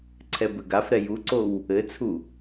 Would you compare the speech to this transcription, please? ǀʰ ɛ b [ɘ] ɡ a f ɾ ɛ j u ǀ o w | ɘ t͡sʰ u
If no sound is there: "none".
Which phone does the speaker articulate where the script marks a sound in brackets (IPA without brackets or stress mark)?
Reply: ɘ